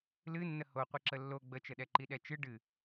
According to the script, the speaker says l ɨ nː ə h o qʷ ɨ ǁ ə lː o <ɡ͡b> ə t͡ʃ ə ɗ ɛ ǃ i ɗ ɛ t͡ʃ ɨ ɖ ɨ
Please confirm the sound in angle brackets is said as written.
yes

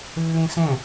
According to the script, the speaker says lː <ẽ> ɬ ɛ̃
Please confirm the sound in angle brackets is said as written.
yes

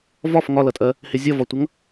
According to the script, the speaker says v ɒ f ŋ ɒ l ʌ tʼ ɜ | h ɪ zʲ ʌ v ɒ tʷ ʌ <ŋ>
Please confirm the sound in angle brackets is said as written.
yes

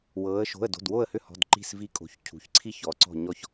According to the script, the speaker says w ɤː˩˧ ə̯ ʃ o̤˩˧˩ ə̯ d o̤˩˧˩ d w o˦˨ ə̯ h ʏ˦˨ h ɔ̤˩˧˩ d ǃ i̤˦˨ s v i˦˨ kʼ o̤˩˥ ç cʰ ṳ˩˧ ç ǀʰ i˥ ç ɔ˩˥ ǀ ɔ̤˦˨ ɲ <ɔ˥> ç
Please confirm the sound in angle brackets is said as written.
no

